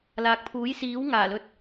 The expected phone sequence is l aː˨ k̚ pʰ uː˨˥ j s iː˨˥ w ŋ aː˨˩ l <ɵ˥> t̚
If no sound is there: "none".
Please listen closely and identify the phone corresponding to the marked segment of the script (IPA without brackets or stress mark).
ɵ˨˥